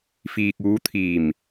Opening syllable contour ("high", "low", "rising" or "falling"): low